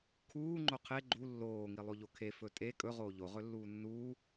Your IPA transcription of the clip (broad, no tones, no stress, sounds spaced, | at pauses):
kʰ uː ŋ͡ǃ o qʰ e ɡ͡ǃ u lː oː ŋ i lˠ o ʎ o kʰ e f ɵ tʼ e kʼ ɵ ʁ oː ʎ o ʁ ɵ lː uː nː uː